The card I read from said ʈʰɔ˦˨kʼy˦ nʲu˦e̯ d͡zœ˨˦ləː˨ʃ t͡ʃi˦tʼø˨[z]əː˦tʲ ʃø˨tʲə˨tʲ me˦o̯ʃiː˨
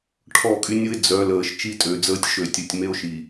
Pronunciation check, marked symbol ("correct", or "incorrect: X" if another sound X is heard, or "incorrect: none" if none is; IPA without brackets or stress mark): incorrect: d͡z